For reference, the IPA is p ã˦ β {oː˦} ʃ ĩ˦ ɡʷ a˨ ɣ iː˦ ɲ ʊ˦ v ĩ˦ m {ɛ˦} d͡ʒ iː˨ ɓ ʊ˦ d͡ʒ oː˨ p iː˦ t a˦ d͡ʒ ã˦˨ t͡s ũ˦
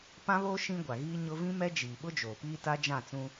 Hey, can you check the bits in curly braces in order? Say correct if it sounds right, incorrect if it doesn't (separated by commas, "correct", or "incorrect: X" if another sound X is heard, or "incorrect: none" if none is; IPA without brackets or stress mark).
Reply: correct, correct